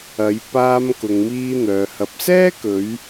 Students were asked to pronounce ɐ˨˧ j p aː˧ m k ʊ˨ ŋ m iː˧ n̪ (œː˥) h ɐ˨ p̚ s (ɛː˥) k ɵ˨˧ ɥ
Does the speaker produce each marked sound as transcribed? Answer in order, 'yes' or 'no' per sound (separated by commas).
no, yes